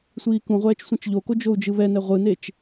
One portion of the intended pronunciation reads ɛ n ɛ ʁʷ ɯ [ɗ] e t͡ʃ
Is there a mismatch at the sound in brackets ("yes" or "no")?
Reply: yes